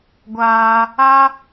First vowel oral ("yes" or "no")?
yes